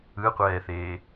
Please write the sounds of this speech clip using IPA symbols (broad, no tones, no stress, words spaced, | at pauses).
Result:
ɯqʷɛːθeː